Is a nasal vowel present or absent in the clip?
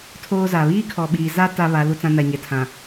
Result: present